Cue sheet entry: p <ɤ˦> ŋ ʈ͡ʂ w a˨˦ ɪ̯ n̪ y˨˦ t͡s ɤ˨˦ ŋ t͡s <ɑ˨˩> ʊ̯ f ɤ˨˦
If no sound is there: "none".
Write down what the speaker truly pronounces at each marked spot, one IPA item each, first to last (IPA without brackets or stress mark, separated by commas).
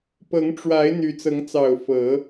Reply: ɤ˨˦, ɑ˨˩